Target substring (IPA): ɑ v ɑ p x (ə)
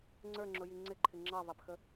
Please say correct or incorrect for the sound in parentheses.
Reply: correct